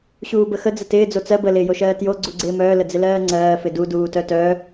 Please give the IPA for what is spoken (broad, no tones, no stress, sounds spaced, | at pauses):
ɕ uː b ə x ə d͡z ə t ɪː d͡z o t͡s ɜ b ə l ɪː j o ʃ ɜː t j o ɡ͡ǀ u ɡ͡ǀ ɪː m œː l ə d͡z ɪ l ɜː ŋ͡ǀ ɜː f ɪ d u d uː t œ t œ